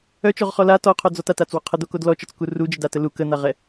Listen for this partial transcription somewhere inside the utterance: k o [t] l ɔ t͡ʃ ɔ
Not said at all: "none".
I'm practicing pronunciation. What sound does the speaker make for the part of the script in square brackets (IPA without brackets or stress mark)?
d